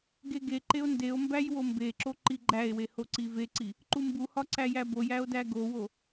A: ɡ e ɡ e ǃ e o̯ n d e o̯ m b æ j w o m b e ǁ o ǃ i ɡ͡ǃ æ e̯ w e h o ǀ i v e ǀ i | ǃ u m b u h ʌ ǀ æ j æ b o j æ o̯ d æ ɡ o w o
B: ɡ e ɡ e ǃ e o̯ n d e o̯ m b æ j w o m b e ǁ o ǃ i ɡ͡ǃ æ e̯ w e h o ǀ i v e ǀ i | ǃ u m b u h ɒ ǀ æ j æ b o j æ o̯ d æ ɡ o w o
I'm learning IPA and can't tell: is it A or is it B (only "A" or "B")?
B